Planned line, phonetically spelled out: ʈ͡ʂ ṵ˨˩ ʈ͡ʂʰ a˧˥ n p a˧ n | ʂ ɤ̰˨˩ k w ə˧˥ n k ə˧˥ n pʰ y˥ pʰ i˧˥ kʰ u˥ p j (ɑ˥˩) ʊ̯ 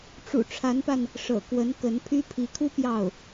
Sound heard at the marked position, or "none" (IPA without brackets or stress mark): ɑ˥˩